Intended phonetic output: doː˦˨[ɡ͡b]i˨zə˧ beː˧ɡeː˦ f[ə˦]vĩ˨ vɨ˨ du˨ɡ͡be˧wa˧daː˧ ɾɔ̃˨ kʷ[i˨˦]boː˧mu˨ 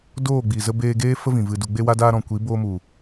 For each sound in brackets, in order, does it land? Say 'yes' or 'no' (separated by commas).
yes, yes, yes